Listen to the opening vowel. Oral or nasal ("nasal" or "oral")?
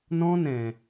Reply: nasal